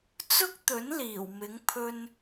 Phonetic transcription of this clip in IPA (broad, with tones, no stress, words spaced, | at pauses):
t͡sʊ˥k̚t̪ɵ˨˥n liː˨˩wmɪ˨˥ŋ pʰɵ˧n